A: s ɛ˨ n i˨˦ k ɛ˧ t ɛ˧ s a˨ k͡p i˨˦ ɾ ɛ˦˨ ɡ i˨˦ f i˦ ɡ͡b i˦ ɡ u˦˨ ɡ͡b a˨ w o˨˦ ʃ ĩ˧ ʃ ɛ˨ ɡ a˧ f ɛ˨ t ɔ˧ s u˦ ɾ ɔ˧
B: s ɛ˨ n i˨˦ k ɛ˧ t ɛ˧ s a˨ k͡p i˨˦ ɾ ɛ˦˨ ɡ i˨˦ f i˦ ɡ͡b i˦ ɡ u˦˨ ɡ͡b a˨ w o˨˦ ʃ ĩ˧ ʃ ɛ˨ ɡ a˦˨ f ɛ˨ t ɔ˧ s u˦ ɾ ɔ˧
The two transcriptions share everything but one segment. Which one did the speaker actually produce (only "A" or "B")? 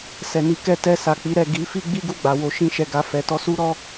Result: A